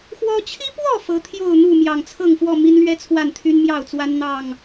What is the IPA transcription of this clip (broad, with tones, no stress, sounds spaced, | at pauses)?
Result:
x w ɔ˦ t͡ɕʰ i˦ p w ɔ˥˨ f ɤ˨˦ t̪ʰ j o˥˨ ʊ̯ n̪ u˥˨ m j ɑ˨˩ ŋ t͡sʰ ɤ˥˨ ŋ f w ɔ˥˨ m i˦ n l ɥ ɛ˦ t͡sʰ w a˥˨ n t̪ʰ y˦ n m j ɑ˥˨ ʊ̯ t͡s w a˦ n n̪ ɑ˥˨ ŋ